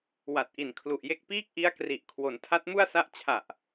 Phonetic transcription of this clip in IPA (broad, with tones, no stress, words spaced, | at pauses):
wa˨˩t̚ʔi˨˩n kʰlu˨˩ʔje˦˥k̚ piː˥˩k̚ʔi˦˥a̯kri˨˩ʔ kʰwo˩˦ntʰa˦˥t̚mu˥˩a̯sa˥˩ʔ t͡ɕʰa˨˩ʔ